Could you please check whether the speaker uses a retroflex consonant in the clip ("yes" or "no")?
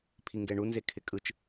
yes